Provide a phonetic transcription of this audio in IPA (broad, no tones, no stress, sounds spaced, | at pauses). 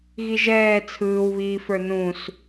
ɣ i ʒ ɛː t͡sʰ ɯː w β iː f ə˞ n ũ s